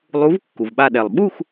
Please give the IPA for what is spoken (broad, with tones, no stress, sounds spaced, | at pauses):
lˠ u˨˥ v kː u˩ v ɓ a˧˩ ɗ ɛ˩ lˠ ɓ u˥˨ x